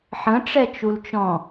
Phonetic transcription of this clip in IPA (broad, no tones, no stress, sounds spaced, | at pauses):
ħ ə̃ ʈ͡ʂ ɛ t͡ʃ u l t͡ʃ ɔ̃